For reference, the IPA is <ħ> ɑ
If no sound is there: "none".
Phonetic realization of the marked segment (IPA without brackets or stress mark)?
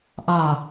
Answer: ʔ